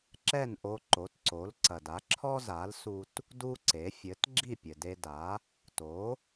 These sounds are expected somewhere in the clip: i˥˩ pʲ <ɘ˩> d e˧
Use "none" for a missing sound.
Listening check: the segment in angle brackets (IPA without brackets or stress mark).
ɘ˩